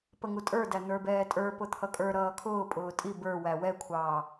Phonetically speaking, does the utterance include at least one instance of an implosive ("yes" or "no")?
no